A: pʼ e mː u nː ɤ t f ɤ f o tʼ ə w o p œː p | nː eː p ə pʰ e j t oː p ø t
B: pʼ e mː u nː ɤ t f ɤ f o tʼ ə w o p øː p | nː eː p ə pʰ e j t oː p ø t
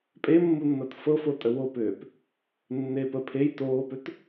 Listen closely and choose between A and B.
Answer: B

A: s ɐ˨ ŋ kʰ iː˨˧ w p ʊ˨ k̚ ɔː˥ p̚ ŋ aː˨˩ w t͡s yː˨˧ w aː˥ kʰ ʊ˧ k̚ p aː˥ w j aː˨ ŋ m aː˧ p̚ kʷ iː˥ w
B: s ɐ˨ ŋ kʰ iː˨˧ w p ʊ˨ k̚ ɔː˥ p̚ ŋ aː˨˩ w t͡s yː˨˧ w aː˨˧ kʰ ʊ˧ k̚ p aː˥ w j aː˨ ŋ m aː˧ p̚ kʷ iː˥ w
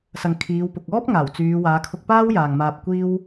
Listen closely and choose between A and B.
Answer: B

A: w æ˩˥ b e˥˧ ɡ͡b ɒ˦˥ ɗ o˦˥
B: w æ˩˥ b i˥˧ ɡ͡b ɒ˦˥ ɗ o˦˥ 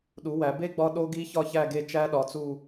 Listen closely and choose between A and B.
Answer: A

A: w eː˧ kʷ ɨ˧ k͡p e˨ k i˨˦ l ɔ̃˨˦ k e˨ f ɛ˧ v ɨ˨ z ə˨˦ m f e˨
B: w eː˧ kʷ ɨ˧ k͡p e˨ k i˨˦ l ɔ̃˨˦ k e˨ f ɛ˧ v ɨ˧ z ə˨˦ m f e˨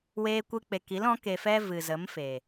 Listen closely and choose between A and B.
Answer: A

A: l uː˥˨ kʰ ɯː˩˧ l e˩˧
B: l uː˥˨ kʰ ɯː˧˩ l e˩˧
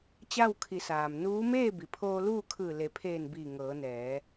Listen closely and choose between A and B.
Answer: B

